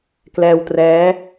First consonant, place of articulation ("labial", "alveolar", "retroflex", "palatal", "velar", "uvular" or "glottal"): velar